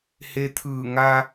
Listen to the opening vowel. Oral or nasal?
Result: oral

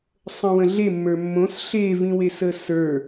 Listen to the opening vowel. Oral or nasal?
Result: nasal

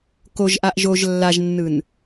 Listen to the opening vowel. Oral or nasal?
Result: oral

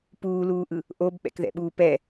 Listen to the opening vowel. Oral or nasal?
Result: oral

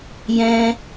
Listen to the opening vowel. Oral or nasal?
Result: nasal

